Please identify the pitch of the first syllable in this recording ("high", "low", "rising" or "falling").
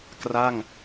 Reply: falling